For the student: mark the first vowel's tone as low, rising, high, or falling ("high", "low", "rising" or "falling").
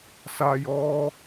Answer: low